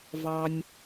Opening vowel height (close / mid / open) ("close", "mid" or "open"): open